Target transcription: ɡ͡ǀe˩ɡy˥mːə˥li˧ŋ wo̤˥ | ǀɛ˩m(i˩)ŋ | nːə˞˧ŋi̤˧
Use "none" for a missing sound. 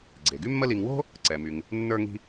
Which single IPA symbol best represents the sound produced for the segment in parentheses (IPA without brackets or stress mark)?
y˩